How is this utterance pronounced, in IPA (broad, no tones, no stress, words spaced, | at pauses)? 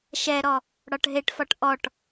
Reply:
ʃɛɾɔ | ɽɒʈɦeʈfɒʈ ʔɔʈ